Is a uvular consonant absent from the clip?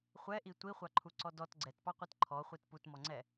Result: no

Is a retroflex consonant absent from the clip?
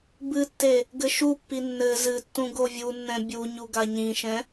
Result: yes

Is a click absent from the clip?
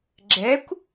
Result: no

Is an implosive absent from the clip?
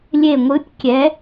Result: yes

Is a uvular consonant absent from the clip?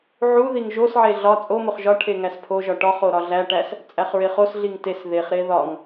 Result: no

